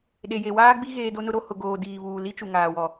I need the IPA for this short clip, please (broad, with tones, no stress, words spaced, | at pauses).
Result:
ɗe˨je˨waː˦ɡ͡bi˦ ɣeː˦do˦nʊ˦ɾo˦ hʊ˨ɡoː˨ diː˨βuː˨ li˦t͡ʃu˨ ŋaː˨wɔ˨